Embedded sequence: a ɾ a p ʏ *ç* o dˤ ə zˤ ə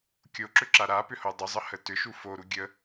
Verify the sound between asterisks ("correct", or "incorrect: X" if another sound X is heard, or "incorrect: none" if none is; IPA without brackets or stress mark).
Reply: incorrect: h